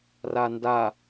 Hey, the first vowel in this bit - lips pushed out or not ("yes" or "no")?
no